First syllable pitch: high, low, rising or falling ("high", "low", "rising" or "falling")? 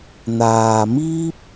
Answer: low